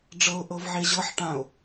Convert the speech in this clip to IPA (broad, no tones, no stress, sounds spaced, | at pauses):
ɖ͡ʐ ɤ ʊ̯ ʔ ɤ v ʕ e ʑ ɤ ħ ʈ ã ʊ̯